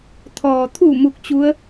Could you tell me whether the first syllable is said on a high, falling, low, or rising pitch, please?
low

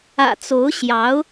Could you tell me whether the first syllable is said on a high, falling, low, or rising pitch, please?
low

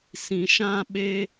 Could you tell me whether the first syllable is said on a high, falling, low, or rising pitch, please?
low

